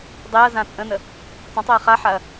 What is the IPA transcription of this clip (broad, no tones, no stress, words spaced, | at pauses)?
dˤeɐ̯ zãt͡sʼə̃nə | tˤə̃tˤeɐ̯ χaħaɐ̯